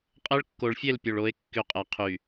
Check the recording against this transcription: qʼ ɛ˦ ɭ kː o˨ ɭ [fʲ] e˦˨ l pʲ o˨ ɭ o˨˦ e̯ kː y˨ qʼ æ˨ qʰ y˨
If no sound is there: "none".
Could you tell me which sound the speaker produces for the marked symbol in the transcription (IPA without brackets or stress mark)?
fʲ